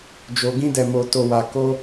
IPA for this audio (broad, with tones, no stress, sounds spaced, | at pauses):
d͡ʒ o˧ ɡ ĩ˦ d ɛ˧ m o˧ t o˧ w a˧ k o˦